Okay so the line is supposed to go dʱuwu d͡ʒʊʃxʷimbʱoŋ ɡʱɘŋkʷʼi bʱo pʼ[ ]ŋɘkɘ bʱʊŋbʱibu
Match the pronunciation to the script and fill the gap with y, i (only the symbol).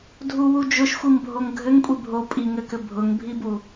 i